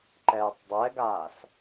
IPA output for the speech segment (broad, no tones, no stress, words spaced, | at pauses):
ǃɛːtˤdˤɛɡaːs